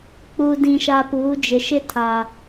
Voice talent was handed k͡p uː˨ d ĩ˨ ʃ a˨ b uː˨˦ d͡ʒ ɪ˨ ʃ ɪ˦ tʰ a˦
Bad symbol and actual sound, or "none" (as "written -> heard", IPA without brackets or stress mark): b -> p